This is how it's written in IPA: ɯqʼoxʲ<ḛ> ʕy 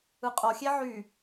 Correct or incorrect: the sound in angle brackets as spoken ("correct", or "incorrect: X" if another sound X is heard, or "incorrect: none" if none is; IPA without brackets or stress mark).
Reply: incorrect: e